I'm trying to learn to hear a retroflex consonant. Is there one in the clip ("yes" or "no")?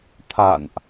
no